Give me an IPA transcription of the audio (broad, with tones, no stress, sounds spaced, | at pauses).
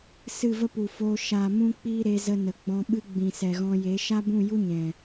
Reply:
s ɨ˦˨ v ə˦ p u˨ f oː˧ ʃ a˨ m ũ˦ k͡p iː˦ ɾ e˧ z ə˧ n ə˨ ɡ͡b ɔ̃˧ ɓ ɨ˦ ɡ͡b ĩ˨ s ɛ˨ ɣ ɔ̃˧ j e˨˦ ʃ a˦ b ũ˦˨ j u˦ ɲ ɛ̃˨